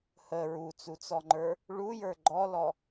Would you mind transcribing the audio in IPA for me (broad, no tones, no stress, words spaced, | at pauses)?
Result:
hə ɹut͡sut͡sɔŋ͡ǃə˞ | ɭujə˞ ɡ͡ǃɔlɔ